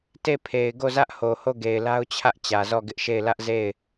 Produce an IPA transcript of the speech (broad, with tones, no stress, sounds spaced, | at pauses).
t e˦˨ pʰ e˨ ɪ̯ ɡ o˦˨ z ä˦ ʔ h o˨ h o˦˨ ɡ e˨ ɪ̯ l a˦ ʊ̯ t͡ɕʰ ä˦ ʔ t͡ɕ ä˨ z ɔ˦˨ ɡ ɪ˦ ʔ ʃ e˦˨ ɪ̯ l ä˦ ʔ z e˦˨ ɪ̯